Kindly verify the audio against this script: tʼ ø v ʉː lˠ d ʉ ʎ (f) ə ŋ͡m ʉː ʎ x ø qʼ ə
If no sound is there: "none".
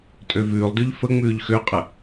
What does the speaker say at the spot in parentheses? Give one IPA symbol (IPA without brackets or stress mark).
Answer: f